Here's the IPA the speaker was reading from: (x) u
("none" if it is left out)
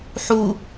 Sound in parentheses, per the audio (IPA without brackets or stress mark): ħ